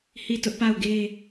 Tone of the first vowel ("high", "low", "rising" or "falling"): falling